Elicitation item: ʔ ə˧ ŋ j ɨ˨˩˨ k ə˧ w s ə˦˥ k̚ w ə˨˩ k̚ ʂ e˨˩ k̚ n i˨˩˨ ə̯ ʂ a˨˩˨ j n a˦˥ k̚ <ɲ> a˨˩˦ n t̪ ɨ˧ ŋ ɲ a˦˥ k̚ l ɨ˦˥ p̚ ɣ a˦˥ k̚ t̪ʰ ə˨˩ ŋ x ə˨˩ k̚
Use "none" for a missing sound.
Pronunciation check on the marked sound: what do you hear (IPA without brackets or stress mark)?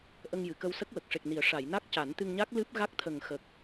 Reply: c